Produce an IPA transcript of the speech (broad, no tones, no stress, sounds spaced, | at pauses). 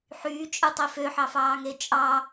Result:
ħ yː t͡ʃʼ ɯ tˤ i f ø ħ ɑ f ɑː ŋ e t͡ʃʼ ɑ